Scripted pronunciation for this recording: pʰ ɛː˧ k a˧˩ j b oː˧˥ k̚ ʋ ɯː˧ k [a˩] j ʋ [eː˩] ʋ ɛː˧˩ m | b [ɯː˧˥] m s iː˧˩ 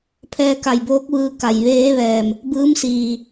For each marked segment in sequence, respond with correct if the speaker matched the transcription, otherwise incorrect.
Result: correct, incorrect, correct

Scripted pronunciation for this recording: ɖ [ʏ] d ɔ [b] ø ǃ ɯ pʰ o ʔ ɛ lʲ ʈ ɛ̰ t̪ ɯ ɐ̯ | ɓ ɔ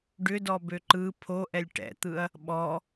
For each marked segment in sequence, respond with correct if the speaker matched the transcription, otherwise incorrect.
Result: correct, correct

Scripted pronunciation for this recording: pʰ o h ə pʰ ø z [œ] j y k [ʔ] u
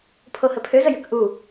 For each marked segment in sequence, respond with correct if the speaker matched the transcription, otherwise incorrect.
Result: incorrect, correct

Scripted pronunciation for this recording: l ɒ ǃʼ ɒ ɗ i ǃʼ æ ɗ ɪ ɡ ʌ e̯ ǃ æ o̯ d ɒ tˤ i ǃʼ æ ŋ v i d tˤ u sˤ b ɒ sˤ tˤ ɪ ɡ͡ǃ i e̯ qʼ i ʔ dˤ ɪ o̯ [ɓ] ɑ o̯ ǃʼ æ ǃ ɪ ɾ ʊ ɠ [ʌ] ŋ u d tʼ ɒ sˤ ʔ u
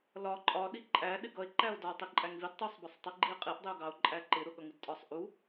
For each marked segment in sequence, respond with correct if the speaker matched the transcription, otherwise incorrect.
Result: incorrect, correct

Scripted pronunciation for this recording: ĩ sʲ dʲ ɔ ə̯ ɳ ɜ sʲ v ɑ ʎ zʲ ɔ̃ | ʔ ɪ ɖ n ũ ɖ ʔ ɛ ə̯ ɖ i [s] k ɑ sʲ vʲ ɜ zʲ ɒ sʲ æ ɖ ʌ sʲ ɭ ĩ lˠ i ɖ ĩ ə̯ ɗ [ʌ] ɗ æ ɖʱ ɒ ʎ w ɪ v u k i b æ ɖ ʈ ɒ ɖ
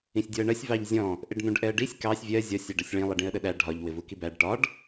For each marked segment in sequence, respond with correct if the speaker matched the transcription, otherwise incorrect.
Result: incorrect, incorrect

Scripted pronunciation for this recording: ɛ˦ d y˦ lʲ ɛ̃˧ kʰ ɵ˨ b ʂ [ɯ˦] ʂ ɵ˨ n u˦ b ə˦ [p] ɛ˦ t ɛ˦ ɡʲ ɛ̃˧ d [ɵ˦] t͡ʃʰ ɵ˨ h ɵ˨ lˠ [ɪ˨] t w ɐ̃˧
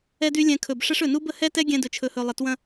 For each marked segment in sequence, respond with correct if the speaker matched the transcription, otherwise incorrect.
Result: incorrect, incorrect, incorrect, correct

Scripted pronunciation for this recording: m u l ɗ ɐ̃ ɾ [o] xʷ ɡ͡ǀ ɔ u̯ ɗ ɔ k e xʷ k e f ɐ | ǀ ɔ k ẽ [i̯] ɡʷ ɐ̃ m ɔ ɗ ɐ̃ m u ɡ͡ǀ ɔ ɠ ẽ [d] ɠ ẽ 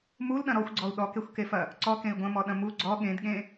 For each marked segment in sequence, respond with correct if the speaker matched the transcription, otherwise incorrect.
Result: incorrect, correct, correct

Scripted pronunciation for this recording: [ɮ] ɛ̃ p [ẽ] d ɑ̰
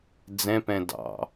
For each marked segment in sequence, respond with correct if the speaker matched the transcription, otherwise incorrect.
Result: incorrect, incorrect

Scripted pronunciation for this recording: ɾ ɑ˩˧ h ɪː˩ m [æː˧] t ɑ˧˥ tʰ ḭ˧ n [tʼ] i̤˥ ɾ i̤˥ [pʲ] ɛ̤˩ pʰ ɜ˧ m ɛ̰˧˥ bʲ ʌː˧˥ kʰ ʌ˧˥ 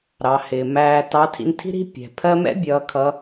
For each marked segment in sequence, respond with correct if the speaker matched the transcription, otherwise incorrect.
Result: correct, incorrect, correct

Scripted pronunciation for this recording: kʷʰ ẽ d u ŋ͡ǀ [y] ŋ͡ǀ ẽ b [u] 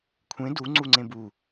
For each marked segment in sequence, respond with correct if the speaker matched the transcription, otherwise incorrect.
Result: incorrect, correct

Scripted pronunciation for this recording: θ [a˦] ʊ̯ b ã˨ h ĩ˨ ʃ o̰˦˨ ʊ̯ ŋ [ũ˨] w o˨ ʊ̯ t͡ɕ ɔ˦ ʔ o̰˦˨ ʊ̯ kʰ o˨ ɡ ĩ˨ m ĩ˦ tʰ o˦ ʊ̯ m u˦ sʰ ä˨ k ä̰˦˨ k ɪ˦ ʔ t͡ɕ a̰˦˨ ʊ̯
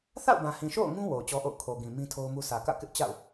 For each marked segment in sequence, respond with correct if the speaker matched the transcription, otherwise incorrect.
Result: incorrect, incorrect

